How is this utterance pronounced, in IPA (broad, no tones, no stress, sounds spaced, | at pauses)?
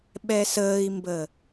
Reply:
ɓ ɛ s əː i̯ m b ə